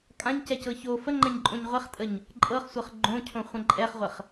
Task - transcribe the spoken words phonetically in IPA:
kʼ ã ɲ c ɛ c ɤ ç o f ə ŋ͡ǃ ɛ̃ ɲ ǃʼ õ ɲ ʁʷ ɛ χ tʼ ə ɲ | ǃʼ ɤ χ sʷ ɤ χ ɡ͡ǃ õ cʰ õ χʷ ɛ̃ ǃʼ ɛ χ ʁʷ ə χ

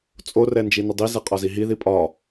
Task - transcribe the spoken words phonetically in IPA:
t͡sʼ o r ɛ n d͡ʒ i n ɐ dˤ i z ɛ qʼ ɒ z i ɦ i ð i pʼ ɒ

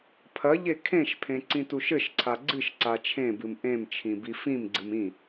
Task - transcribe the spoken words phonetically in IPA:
pʰ ɐ ʎ e kʰ ẽ ʃ pʰ ẽ ǀ ĩ t u ʃ ɘ ʃ ǀʰ a ɡ͡ǀ ɨ ʃ ǀ a t͡ʃʰ ẽ b ɨ m ʔ ẽ m t͡ʃʰ ĩ b i f ĩ m ɡ͡ǀ ɨ m ĩ

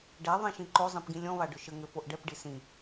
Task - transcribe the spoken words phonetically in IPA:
ɖ ɛ ðˤ ĩ ʃ ĩ ǃ o zˤ ĩ p ɡ ĩ lʲ ɔ̃ β a ɖ ʏ ʃ ə ŋ ʏ f o ʔ ɖ ɛ p ɖ i s ĩ

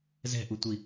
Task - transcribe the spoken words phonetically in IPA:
z ɛ̤ ʔ u tʷ i

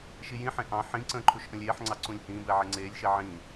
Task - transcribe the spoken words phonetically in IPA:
ʃ i j ĩ ħ ẽ ʔ ɑ̃ ħ ĩ ǀ ə̃ː ǃʰ u ʃ ʔ ə̃ lʲ eː ħ ŋ͡ǀ ɑ ǀ ũ lʲ h ĩː b ɛ ʕ e ŋ͡ǀ eː lʲ ʃ e ʕ ĩː

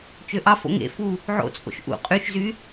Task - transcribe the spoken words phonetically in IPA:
t͡ʃ ø ʔ ɑ f o̰ ŋ ḛ f u | ʕ o̰ t͡sʼ o̰ ʃ ʔ ṵ qʼ y ʃ z y

